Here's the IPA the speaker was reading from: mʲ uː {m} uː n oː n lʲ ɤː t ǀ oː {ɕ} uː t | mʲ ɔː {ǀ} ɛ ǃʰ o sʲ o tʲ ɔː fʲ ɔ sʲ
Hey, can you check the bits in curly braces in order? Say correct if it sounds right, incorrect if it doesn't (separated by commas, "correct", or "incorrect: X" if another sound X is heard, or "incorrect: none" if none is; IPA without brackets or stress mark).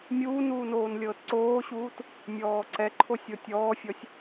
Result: incorrect: n, correct, correct